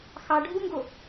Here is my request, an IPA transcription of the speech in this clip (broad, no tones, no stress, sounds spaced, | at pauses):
x ɑ ɖʱ u ŋ ɡ o